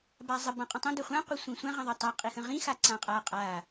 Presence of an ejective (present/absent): present